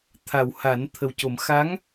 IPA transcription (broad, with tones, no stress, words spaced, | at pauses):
t̪ʰa˨˩wha˨˩˦n t̪ʰə˨˩wco˨˩˦m xa˧˥ŋ